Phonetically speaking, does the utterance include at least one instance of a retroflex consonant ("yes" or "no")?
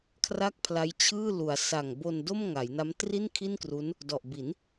no